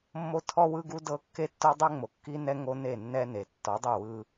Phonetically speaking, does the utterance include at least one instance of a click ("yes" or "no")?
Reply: no